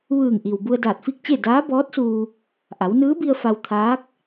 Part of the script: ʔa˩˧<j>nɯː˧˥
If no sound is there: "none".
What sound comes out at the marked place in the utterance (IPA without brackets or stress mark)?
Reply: w